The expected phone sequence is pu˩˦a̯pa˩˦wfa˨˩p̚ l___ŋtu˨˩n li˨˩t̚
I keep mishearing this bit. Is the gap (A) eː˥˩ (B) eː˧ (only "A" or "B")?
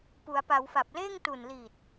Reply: A